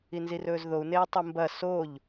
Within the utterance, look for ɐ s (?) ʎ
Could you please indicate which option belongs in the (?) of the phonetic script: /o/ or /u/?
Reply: o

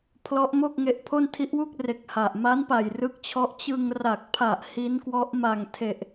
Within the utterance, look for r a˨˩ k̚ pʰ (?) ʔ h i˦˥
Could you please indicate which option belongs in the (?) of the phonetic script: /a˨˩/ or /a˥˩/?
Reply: a˨˩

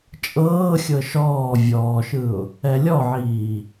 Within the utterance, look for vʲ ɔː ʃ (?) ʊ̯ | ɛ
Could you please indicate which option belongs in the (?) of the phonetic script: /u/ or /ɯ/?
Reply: ɯ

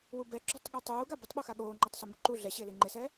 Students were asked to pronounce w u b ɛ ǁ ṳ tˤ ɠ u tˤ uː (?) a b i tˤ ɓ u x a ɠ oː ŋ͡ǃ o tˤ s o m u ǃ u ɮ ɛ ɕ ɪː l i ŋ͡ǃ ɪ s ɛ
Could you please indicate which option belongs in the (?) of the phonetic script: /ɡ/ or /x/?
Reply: ɡ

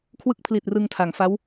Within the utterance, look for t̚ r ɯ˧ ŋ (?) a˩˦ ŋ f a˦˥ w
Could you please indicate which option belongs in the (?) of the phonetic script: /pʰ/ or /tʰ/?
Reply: tʰ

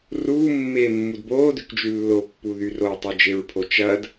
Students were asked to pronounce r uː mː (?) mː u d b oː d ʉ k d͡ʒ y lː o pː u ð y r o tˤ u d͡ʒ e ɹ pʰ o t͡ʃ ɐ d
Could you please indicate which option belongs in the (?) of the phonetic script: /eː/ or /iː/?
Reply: eː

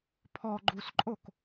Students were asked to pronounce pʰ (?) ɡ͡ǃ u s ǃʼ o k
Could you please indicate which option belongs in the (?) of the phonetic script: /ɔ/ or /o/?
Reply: ɔ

